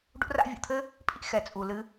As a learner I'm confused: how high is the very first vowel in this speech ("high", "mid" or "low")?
high